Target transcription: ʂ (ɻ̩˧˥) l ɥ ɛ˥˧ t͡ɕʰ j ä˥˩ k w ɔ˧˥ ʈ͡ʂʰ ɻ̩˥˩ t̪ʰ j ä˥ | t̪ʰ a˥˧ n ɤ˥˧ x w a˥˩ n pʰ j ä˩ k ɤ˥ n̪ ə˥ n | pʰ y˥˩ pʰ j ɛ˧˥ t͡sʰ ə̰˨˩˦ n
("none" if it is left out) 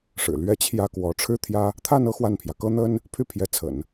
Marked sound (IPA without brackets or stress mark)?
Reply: ɻ̩˨˩